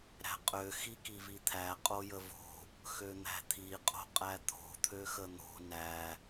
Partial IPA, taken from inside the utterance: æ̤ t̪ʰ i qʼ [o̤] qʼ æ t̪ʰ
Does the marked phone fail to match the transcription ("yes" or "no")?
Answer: no